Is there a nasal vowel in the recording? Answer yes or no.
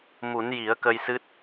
no